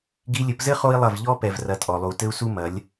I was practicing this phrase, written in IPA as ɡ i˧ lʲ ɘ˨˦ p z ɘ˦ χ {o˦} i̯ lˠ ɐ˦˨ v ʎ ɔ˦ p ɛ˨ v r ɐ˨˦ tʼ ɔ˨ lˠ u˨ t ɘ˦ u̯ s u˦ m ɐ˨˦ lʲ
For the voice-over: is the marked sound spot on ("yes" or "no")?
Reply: yes